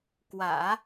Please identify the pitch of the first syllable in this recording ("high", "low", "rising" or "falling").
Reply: low